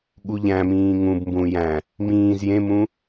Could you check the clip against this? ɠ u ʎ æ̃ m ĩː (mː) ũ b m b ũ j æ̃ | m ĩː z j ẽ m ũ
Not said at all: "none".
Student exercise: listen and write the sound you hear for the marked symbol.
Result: ŋ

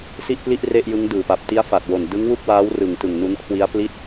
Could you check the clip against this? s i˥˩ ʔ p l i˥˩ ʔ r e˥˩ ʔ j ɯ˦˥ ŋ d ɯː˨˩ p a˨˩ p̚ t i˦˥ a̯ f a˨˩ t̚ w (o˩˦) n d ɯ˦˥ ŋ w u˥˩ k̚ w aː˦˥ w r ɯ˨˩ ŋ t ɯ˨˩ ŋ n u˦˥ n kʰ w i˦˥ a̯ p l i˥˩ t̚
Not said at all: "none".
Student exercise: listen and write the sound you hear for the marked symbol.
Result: o˨˩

